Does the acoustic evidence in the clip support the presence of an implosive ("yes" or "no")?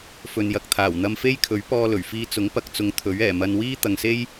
no